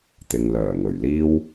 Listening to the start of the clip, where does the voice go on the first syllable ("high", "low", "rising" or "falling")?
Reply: low